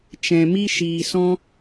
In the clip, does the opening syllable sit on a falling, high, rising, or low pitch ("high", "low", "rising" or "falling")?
low